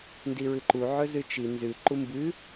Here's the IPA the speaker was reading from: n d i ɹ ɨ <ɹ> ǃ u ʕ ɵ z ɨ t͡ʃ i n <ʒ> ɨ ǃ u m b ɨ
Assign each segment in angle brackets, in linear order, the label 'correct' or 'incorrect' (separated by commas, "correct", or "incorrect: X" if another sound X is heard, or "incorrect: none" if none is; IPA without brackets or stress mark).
incorrect: none, incorrect: z